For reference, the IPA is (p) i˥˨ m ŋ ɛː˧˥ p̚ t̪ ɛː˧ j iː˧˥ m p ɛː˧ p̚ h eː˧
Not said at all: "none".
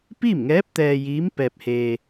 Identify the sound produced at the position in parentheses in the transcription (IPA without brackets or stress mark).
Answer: p